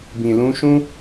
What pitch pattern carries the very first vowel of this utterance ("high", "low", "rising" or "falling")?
low